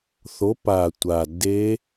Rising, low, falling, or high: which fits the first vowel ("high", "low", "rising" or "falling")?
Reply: rising